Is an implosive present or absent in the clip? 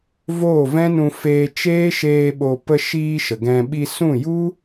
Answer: present